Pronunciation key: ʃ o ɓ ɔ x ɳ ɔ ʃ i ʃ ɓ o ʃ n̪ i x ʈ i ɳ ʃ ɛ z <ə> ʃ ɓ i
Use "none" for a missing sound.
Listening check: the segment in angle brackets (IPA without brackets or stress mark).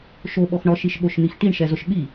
ʊ